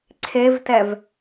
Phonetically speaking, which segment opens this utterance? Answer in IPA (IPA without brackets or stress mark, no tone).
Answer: ǀʰ